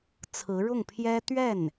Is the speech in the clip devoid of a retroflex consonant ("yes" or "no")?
no